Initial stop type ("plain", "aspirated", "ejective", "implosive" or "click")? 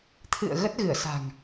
aspirated